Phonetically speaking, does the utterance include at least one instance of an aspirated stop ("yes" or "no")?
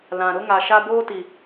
no